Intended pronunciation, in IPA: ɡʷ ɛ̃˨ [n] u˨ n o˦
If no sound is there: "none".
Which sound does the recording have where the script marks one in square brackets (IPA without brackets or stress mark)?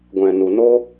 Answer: n